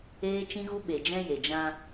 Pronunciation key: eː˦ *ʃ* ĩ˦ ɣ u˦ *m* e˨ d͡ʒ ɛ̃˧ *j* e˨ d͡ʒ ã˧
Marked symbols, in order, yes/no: no, no, yes

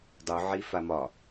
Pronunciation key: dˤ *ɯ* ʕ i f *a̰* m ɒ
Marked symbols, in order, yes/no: no, no

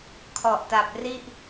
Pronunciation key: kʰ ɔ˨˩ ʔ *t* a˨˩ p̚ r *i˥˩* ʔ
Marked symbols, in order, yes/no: yes, yes

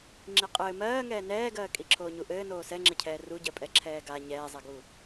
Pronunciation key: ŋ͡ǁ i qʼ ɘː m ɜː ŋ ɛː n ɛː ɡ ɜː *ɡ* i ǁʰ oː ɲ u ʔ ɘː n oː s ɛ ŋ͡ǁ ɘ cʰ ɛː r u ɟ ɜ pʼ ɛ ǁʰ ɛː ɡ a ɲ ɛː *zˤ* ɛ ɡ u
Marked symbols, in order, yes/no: no, yes

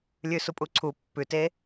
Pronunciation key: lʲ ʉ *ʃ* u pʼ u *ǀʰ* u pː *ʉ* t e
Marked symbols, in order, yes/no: no, yes, yes

